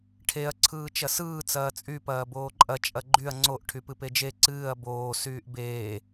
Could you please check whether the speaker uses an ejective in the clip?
yes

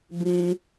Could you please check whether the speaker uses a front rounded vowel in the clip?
no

